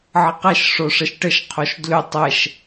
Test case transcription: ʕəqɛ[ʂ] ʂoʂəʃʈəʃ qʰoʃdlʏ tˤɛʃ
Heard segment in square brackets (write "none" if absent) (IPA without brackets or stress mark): ʃ